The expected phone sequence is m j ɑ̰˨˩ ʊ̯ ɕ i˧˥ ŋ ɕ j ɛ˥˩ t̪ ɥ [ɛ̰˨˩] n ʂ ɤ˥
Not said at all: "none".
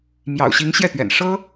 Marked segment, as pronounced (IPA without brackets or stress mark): ɛ̰˨˩